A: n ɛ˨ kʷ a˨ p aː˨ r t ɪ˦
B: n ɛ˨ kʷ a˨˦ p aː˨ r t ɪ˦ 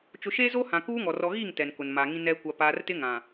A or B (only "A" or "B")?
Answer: A